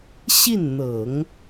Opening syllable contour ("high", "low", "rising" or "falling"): falling